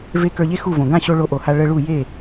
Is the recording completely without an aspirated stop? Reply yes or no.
yes